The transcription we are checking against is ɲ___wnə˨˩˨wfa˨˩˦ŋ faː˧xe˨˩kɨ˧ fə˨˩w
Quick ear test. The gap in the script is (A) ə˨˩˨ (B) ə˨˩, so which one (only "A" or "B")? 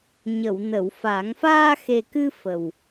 A